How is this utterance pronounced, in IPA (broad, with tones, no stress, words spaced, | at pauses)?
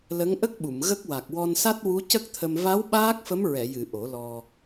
lə˧˥ŋʔə˦˥k̚ɓu˨˩˨m ɣə˦˥k̚wa˨˩k̚ wɔ˧nsa˦˥t̚ wu˧˥cə˦˥k̚t̪ʰə˧m va˧˥w ɓaː˦˥k̚fə˧˥mɹɛ˨˩˨jɨ˨˩˨ ʔo˨˩˦lɔ˧